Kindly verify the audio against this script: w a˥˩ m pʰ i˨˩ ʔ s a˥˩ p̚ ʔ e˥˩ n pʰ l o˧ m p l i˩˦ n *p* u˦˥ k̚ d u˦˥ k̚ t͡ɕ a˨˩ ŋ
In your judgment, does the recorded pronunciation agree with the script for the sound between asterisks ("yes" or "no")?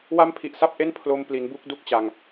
no